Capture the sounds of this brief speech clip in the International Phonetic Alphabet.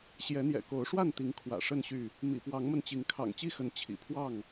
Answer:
ɕ j ɛ˨˦ n̪ j ɛ̰˨˩ k o˨˦ ʊ̯ ʂ w a˥˨ n t̪ i˨˦ ŋ kʰ w ä̰˨˩ ʂ ə˥˨ n ɕ y˥˨ | m ḭ˨˩ p w ɑ˨˦ ŋ m ə˧ n t͡ɕ i˨˦ ŋ kʰ ɑ̰˨˩ ŋ t͡ɕ i˥˨ x ə˨˦ n t͡ɕʰ ḭ˨˩ pʰ w ɑ˥˨ ŋ

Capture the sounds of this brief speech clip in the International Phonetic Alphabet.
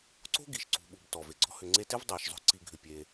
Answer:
ǀ o̤˥ ɡ i˩ ʃ ǀ ṳ˨ ɓ u˩ b t ɔ˩ v e˩ ɡ͡ǀ ɔ̤˦ h ʏ˨ ŋ͡ǀ e˦ t e˥ v dˤ e˩ ʃ zˤ o̤˦ ǀ i˨ ɡʱ ʏ˨ pʲ e˨

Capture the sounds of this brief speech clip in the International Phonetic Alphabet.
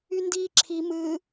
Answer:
y n d iː ǁʰ i m ɨ

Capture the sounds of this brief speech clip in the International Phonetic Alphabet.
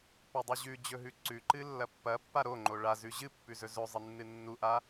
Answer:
p ɵ dˤ u ʑ ʉ d͡ʑ ɵ ɦ ʉ ǀ ʉ ǃ ɨ lː ɐ pː ɐ pː a ɾ o ŋ͡ǃ o ɭ a z ʉ ʑ ɨ pː ʉ z ɵ z ɵ zˤ ɨ nː ɨ nː u ʔ a

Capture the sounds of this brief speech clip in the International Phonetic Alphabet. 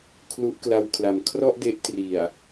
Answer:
kʰ l u˦˥ ʔ k l a˧ w kʰ l a˨˩ m kʰ r ɔ˥˩ ʔ d e˦˥ ʔ t r i˨˩ a̯

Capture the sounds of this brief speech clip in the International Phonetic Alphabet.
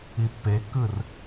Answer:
i pː e kː ɯ r

